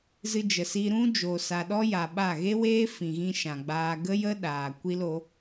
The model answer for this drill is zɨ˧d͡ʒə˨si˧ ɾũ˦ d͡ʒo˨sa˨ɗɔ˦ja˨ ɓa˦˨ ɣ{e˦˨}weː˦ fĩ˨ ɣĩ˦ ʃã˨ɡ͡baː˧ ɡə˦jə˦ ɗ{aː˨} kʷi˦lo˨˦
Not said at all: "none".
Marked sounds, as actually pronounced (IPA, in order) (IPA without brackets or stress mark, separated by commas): e˦, aː˨